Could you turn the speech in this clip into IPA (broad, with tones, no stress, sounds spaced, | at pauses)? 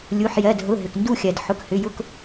lʲ u˩˧˩ ħ j ɜ˩˧˩ d ɦ ʊ˩˧˩ ɦ ʏ˩ k n d u˦˨ xʲ ɜ˩ d ħ ʊ˩˧˩ k h ʏ˩˧˩ j ʊ˦˨ k